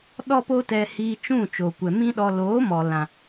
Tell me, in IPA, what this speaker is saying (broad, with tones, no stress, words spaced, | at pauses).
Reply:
ɗɔ˦po˦tɛ˧ hiː˧t͡ʃũ˦˨ t͡ʃo˨kʷɛ˨mĩ˦ɗɔ˧ loː˨˦ mɔ˨ lã˨